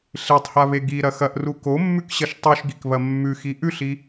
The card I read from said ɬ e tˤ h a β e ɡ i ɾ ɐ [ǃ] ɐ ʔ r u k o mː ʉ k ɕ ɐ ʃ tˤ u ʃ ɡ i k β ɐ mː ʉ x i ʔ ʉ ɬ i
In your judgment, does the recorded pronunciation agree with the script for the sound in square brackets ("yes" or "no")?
no